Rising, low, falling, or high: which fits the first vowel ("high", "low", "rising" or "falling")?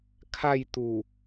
falling